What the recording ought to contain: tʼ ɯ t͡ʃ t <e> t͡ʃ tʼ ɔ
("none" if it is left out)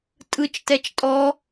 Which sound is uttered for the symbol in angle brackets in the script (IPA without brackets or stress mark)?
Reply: ɛ